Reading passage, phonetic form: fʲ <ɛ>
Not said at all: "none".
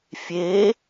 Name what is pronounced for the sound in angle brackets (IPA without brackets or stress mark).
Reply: e